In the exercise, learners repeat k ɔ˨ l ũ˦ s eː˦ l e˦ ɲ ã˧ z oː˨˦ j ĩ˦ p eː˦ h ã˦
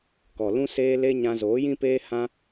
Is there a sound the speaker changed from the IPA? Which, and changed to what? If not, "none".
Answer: none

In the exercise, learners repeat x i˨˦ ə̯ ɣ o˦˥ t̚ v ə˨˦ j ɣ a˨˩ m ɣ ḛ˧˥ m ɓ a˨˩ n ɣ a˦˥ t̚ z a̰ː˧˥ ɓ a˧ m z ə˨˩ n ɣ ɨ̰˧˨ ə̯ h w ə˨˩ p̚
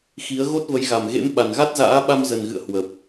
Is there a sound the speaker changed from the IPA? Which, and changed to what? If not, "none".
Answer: none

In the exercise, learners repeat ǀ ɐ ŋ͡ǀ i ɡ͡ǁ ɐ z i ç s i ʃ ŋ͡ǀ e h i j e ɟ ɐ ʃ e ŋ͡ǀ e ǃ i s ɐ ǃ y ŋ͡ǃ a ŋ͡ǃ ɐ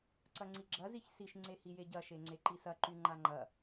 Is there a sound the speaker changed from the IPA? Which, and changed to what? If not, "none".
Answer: none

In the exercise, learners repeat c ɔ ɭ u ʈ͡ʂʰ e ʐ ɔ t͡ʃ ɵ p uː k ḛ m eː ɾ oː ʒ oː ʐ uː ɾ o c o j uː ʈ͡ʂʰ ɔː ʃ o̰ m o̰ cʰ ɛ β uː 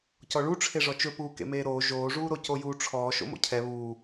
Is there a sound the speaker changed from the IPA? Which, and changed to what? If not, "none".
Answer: none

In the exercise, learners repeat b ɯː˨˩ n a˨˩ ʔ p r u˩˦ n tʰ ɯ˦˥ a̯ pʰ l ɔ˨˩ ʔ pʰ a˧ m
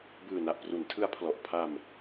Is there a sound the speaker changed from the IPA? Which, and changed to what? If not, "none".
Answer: none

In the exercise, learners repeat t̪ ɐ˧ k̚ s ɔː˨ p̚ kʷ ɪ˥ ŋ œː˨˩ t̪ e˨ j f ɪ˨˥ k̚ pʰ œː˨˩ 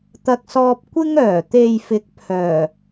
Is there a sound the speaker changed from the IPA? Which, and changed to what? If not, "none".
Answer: ɔː˨ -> ɔː˧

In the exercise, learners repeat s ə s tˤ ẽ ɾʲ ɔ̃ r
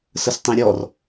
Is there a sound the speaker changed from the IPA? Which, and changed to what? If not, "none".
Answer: ɔ̃ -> ɔ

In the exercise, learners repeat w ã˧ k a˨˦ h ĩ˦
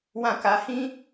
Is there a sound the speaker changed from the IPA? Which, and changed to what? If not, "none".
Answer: none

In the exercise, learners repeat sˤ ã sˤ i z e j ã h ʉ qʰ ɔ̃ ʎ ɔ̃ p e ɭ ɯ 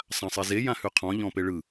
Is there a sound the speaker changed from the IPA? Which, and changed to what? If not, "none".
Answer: none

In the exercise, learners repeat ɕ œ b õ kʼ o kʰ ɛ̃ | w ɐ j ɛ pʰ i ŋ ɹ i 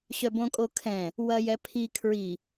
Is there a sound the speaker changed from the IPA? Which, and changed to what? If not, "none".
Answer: ŋ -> kʰ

